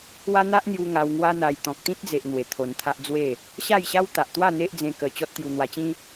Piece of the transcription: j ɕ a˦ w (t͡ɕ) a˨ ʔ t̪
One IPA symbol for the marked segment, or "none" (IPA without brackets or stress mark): t̪